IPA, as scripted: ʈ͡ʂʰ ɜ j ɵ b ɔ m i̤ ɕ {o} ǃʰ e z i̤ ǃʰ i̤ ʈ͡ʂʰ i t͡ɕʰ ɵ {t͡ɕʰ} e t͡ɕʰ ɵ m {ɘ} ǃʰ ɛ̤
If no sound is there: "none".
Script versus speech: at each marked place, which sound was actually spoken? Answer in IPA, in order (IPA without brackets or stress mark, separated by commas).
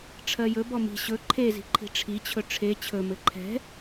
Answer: ɵ, ʈ͡ʂʰ, ɘ